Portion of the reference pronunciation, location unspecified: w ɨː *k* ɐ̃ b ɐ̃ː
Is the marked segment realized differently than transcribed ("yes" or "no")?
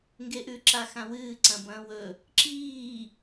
yes